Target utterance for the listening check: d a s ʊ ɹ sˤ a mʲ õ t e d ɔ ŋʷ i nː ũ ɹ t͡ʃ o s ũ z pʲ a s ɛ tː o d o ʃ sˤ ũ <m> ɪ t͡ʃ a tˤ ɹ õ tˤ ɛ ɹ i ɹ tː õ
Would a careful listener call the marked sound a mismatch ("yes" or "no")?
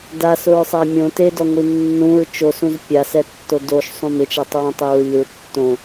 no